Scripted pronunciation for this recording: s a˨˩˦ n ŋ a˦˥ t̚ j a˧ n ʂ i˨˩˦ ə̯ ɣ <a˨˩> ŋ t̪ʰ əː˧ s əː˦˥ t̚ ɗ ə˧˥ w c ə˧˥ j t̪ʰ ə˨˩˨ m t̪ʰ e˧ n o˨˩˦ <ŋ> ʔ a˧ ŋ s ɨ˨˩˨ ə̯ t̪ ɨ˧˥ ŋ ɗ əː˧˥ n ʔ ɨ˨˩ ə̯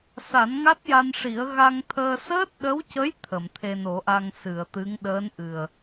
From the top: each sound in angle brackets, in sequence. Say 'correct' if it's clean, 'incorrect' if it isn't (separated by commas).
incorrect, incorrect